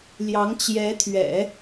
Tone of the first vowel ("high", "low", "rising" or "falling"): rising